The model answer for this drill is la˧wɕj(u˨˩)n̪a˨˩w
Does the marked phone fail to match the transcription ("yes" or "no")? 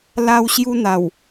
yes